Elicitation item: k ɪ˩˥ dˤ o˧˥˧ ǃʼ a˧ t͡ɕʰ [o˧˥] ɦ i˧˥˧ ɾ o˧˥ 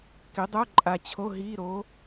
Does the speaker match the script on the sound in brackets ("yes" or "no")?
no